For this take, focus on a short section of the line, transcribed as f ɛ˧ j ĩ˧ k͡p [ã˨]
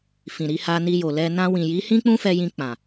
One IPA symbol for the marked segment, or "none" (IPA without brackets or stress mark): ã˨